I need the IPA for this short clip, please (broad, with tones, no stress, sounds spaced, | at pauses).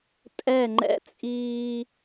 tʼ ɛ˦˨ ŋ͡ǃ ɛ̰˦ t͡sʼ iː˦